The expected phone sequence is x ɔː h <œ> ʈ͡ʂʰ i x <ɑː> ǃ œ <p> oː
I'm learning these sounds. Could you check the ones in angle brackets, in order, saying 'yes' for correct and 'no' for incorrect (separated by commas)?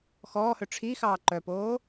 no, yes, yes